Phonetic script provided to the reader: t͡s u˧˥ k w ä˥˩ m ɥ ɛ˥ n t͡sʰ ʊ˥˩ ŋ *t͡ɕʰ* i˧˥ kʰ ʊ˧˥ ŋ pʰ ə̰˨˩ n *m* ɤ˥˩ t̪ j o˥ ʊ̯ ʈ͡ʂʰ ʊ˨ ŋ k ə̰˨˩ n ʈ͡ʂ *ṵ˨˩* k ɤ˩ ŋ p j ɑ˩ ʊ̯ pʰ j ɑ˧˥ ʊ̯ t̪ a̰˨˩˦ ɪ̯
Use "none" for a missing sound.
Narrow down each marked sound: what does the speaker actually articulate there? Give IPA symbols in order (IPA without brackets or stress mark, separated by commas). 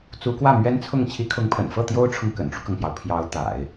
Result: t͡ɕʰ, f, u˦